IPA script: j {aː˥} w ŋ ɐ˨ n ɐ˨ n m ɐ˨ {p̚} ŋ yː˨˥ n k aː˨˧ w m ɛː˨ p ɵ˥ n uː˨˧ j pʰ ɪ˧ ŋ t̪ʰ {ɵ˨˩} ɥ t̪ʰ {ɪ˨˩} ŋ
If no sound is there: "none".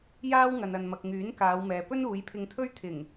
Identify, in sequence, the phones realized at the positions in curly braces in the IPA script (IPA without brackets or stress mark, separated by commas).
aː˧, k̚, ɵ˥, ɪ˨˩